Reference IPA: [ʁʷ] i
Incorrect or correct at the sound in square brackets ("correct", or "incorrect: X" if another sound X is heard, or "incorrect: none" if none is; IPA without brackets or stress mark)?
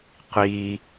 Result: incorrect: qʷ